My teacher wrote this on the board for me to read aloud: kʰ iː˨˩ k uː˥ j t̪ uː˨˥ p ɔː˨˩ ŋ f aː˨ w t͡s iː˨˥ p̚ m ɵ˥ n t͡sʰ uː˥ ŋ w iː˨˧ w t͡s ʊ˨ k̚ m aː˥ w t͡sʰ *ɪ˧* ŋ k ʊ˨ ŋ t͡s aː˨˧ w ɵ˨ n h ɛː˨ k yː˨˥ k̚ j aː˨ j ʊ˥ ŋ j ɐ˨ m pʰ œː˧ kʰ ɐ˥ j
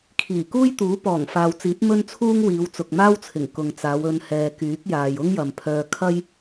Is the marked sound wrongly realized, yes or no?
yes